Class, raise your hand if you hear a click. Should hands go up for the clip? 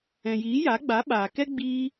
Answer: no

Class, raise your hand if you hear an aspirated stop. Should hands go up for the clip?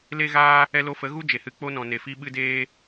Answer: no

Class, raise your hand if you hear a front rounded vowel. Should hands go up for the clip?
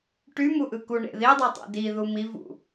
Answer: yes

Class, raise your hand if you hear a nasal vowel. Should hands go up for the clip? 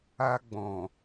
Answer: yes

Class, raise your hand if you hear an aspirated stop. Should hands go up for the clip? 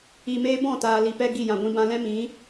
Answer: no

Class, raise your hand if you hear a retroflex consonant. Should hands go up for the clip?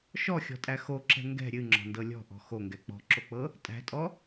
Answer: no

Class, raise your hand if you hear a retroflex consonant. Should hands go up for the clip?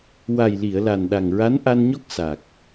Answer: no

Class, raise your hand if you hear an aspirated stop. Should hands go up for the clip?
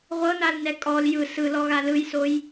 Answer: no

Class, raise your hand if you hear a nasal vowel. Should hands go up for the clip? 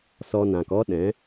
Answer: yes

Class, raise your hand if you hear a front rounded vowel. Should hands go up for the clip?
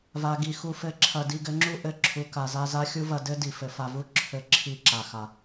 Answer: no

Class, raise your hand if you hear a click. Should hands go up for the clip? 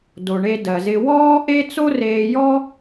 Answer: no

